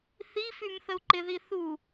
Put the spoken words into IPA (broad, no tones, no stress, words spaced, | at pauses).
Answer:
θifym θəu̯ǃɪði θu